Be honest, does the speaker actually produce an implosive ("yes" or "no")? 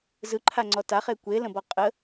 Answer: no